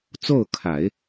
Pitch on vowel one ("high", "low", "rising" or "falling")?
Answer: falling